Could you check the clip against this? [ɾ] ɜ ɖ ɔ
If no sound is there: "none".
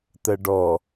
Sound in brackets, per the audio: t̪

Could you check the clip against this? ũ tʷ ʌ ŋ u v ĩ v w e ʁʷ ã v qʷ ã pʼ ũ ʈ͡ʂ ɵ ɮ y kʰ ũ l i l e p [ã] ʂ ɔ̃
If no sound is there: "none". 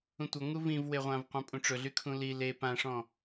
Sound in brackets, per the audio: ã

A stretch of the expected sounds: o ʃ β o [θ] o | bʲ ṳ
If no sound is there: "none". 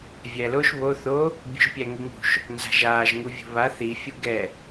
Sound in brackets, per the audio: θ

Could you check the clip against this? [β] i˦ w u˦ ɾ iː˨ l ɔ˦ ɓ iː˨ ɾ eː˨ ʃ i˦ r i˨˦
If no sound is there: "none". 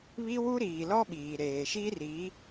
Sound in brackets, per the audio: β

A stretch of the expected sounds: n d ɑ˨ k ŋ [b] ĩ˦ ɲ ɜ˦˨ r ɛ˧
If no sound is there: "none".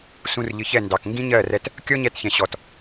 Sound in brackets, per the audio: ɡ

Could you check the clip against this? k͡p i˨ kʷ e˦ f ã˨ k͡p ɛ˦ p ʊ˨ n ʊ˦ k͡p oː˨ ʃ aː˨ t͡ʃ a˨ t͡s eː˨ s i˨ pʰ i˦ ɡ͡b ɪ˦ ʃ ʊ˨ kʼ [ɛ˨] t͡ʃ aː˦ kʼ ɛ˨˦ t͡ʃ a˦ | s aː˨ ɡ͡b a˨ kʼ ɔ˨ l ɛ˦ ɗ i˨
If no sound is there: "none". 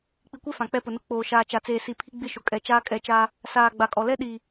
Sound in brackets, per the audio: ɛ˨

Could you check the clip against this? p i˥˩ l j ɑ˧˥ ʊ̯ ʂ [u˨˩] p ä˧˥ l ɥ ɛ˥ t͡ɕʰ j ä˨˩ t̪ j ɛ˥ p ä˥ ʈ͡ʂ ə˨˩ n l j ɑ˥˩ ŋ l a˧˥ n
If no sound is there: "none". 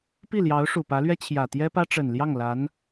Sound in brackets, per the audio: u˨˩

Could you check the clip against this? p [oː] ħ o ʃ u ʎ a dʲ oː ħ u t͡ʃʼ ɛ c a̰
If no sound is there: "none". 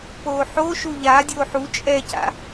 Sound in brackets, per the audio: oː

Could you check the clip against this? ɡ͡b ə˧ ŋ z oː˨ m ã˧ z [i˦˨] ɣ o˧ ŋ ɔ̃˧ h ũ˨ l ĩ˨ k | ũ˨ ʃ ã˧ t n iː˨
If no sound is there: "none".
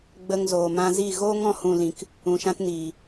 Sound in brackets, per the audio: i˦˨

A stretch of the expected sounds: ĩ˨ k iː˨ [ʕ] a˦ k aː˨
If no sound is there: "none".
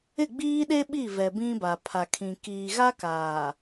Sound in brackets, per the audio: ɣ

